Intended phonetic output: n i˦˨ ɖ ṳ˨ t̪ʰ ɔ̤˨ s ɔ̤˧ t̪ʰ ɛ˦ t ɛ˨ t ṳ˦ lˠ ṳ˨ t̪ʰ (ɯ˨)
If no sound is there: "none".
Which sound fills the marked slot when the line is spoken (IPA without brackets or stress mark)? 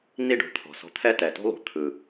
ɯ˨